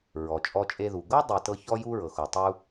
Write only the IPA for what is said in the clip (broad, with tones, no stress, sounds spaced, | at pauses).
ɹ ɔ˩ t͡ʃʼ ɔ˧ t͡ʃʼ e˧ ð u˩ ɡ ɤ˥ dˤ i˩ t ɤ˧ ç ɔ˧ j u˧ ɹ ɤ˩ x o˩ tˤ u˧